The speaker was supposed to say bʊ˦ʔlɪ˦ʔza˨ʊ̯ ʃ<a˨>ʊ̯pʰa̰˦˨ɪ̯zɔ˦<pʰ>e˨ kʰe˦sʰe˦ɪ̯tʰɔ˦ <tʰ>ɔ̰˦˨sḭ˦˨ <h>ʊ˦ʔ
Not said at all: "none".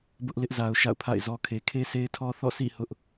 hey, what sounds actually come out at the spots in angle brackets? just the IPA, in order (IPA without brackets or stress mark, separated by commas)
a̰˦˨, kʰ, θ, h